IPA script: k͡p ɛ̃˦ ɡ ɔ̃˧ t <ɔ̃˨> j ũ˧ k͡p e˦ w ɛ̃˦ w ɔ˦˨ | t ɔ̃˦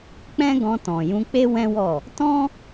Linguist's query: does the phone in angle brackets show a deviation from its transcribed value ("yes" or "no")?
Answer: no